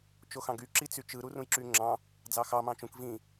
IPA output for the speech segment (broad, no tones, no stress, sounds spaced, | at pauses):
t͡ʃ o x ɑ̃ ɡ y ǁ i t͡s y t͡ʃ ɯ ɾ u r ũ j ǁ y ŋ͡ǁ ɑ̃ | d͡z ɑ x ɑ m ɑ̃ t͡ʃ ũ k v ĩ